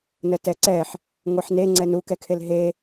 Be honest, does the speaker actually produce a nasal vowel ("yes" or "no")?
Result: no